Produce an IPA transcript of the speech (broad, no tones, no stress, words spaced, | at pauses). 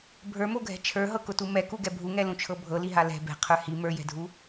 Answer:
bʱə˞moɡʱɛ̤ t͡ʃʰə˞ɦɤkʊtu mɛkuɡɛ bʱuŋɛlũt͡ʃʰɤ bʱɤliɦa lɛ̤ bɛ̤qʰə˞ hi mə˞jɛ̤dʱu